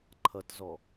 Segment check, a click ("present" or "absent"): present